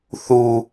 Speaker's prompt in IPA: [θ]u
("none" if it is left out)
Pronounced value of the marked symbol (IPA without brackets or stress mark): θ